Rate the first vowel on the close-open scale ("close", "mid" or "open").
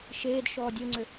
mid